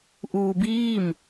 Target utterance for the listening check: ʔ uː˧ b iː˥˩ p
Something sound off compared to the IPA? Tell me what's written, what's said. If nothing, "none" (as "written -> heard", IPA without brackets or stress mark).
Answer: p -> m